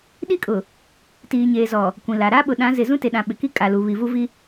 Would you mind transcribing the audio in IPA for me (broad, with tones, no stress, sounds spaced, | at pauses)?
ɗ i˦˨ kʼ ʊ˨ | t iː˨ ɲ eː˨ z ɔ˨ | kʷ ĩ˨ l a˨ ɾ aː˦ ɓ ʊ˨ ɗ ã˨˦ z ɪ˨ z ũ˦ t e˨ ɗ ã˨ ɓ ɪ˨ k i˦ kʼ a˨ l u˨ β i˨ v u˦ v i˦